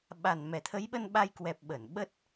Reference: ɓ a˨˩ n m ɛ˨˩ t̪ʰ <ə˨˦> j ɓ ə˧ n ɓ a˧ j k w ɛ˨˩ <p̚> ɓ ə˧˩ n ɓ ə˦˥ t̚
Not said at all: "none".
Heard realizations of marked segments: ə˨˦, p̚

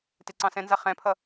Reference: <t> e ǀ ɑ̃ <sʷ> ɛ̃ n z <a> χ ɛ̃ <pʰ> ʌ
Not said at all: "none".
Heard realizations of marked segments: t, s, a, pʰ

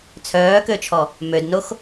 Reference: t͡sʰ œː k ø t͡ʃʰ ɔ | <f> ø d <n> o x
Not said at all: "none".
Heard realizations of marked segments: m, n

